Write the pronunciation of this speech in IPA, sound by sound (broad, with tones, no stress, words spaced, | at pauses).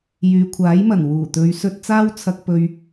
jyː˨kʷʰaː˨˥jmɐ˨˩n wuː˨˩t̪ɵ˨˧ɥ sɵ˧t̚ t͡saː˥wt͡sʰɐ˧k̚ pɵ˧ɥ